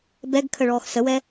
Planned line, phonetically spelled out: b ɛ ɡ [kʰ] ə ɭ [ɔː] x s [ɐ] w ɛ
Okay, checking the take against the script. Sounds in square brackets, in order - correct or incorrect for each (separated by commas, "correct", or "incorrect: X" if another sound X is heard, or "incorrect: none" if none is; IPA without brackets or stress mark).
correct, correct, incorrect: ə